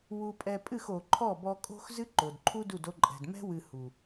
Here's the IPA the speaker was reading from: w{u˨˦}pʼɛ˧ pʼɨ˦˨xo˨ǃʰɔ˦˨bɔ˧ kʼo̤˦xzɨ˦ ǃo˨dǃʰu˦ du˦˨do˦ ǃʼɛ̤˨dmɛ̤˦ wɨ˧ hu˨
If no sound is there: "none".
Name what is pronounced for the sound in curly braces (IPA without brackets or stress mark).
u˧